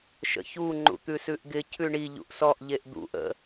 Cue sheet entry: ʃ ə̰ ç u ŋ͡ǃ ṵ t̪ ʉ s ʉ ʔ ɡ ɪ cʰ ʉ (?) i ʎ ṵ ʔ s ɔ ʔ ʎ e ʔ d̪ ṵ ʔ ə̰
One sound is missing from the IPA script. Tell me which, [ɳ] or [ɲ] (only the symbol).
ɳ